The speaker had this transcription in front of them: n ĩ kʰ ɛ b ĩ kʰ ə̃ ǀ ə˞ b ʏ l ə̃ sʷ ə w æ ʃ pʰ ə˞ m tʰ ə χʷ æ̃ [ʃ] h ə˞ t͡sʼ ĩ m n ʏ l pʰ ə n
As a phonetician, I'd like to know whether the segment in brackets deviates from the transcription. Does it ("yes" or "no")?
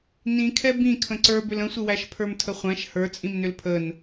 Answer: no